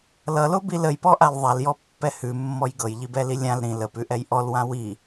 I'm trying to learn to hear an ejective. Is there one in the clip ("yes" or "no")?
no